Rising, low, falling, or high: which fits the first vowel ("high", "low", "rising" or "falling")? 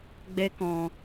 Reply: high